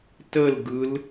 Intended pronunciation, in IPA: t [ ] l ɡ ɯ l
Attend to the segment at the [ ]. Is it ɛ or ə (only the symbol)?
ə